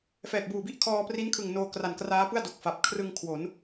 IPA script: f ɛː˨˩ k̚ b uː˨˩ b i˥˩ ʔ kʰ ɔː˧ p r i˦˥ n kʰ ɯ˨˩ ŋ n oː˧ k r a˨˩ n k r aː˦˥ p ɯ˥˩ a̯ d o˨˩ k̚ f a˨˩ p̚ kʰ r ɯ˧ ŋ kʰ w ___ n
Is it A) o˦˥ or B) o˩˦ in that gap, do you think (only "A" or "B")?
B